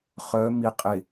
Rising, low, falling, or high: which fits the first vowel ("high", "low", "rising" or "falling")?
rising